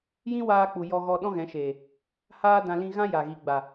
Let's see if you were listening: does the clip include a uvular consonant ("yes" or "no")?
no